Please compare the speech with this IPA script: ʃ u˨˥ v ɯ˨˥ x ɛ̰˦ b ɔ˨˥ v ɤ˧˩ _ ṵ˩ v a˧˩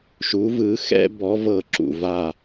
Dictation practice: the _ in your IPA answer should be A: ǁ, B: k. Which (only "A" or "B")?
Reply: A